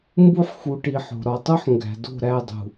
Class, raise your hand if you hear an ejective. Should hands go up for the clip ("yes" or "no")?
no